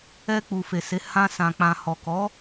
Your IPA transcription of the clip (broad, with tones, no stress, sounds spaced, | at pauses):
ɛ˧ k͡p u˨ f e˨ s e˨˦ h ã˧ s ã˨ k͡p ã˨ h ɔ˨ k ɔ˨˦